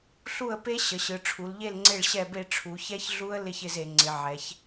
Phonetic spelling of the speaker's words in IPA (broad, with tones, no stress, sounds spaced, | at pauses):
ɬ u˥˨ ə̯ p e˦˥ ɕ ə˩˧ ɕ ɯ˩˧ ʈ͡ʂʰ u˩˧ l ʎ e˥˨ l ŋ͡ǀ e˥˨ ɭ ɕ ɛ˥˨ b e˥˨ ʈ͡ʂʰ u˩˧ ç ɛ˦˥ ç ɮ u˦˥ ə̯ l ɪ˥˨ ç ɪ˥˨ z e˩˧ ŋ͡ǀ ɪ˩˧ ʕ ɛ˩˧ ç